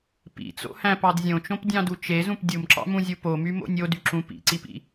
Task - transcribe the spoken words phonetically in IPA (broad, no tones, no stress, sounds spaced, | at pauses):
p ḭ t͡s o̰ h æ̃ p ɑ d zʲ õ t͡ʃ õ p dʲ ɑ̃ d u t͡ʃ e z ũ p dʲ u m ǁ ɑ̰ m ũ zʲ u p o m y m o̰ nʲ o d y ǁ ũ p ḭ ǀ i p ḭ